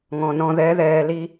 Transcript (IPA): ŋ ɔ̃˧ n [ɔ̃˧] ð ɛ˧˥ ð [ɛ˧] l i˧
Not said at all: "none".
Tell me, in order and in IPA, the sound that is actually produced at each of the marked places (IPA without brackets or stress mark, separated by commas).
ɔ̃˧, ɛː˧